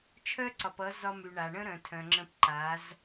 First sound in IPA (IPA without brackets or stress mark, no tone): t͡ʃʰ